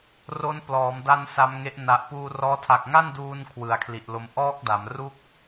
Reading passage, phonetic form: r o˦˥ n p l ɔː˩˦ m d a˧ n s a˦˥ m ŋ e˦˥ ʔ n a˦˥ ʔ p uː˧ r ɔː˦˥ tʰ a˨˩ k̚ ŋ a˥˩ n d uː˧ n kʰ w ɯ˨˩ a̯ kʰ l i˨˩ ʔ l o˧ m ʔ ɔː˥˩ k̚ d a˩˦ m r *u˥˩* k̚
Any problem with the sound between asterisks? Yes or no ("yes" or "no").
no